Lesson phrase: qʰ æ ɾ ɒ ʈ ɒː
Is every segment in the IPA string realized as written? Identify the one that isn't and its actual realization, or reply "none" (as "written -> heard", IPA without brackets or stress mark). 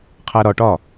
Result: none